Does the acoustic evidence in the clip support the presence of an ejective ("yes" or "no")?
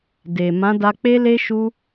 no